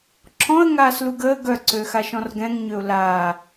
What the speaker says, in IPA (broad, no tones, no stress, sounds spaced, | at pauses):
ǁʰ ɔ̃ ə̯ ŋ aː s l u ɡ əː ɡ œ ǀ øː x a ʃ ɔ̃ r ɡ ɛ̃ ŋ ɲ ø ʊ̯ l aː